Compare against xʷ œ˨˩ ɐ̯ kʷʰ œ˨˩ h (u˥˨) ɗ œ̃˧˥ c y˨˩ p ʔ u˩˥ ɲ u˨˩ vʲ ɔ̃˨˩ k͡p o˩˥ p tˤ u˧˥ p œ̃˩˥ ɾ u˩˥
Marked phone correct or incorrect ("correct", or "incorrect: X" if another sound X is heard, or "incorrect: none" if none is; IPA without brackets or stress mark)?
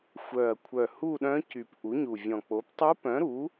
correct